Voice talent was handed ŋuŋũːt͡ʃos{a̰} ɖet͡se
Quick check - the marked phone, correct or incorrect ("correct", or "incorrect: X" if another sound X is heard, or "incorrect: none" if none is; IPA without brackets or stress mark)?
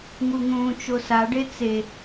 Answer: incorrect: a